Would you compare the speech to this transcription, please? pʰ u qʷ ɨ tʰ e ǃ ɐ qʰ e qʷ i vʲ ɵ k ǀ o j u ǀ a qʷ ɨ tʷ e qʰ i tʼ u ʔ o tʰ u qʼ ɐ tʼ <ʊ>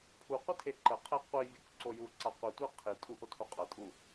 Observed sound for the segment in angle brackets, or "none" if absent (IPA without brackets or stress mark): u